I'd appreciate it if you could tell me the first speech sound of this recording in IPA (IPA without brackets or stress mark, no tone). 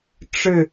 ʈ͡ʂ